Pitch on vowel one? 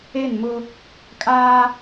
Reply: falling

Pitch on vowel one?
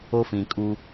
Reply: high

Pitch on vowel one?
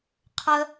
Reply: low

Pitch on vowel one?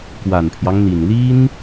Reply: low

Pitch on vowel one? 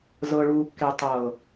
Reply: low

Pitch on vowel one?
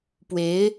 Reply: rising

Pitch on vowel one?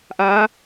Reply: rising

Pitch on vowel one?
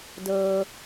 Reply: low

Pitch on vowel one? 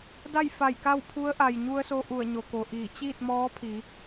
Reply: falling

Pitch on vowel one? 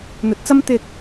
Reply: rising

